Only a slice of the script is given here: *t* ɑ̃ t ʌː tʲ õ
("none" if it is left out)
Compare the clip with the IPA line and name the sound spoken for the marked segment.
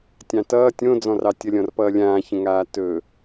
tʲ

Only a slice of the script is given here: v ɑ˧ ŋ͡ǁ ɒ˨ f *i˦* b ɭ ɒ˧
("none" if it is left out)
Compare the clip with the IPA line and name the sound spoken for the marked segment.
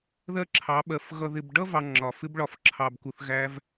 ɪ˦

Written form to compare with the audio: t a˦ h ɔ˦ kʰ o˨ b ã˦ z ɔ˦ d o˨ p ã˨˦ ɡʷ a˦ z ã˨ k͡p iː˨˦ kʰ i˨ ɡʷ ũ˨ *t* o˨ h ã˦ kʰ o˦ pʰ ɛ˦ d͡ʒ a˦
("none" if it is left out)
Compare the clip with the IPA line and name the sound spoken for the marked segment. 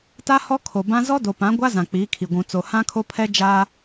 t͡s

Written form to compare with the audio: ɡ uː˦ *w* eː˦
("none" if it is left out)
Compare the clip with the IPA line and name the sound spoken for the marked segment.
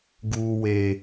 w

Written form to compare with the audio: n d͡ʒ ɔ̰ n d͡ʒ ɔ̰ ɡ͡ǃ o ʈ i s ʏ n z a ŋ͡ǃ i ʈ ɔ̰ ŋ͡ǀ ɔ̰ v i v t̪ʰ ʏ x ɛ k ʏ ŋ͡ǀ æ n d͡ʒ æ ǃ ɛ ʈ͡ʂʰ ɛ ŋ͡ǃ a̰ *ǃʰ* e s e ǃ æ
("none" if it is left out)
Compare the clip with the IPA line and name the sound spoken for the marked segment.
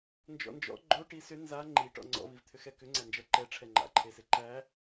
ǃʰ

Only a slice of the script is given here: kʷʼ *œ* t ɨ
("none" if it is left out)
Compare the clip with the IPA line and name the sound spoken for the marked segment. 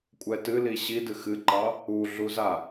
ɛ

